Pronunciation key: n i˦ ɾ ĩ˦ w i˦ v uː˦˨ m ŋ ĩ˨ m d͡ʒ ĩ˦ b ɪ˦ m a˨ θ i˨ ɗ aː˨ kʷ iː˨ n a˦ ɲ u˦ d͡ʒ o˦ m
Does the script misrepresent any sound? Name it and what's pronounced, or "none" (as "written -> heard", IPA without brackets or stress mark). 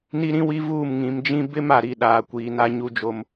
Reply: θ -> ɾ